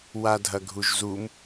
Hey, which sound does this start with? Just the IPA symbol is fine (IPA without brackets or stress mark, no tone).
w